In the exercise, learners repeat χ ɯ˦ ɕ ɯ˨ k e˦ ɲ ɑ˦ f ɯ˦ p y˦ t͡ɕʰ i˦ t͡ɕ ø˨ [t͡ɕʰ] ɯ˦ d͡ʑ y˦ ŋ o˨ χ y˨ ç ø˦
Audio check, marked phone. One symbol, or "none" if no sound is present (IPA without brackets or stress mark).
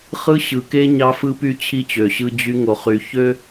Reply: ɕ